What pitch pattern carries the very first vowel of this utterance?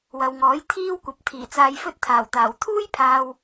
low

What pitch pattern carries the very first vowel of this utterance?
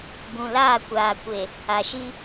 low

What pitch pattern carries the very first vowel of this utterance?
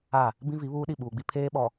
falling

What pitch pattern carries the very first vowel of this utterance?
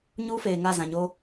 high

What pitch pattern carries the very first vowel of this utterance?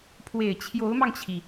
low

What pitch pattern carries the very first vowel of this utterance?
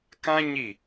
high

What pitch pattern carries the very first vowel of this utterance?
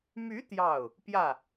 rising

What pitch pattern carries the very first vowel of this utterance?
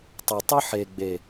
low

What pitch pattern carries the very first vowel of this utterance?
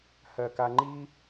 low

